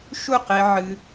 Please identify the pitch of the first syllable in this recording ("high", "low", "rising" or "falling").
falling